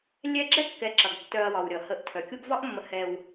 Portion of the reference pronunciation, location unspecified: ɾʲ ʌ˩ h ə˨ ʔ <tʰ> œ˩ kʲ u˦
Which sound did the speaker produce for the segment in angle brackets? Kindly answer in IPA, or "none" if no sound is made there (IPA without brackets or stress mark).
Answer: tʰ